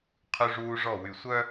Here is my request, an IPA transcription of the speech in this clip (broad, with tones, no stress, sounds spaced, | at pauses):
qʰ ʉ˦ ʐ uː˦ ʐ ɔ˦˨ w y˨ sʷ œ˦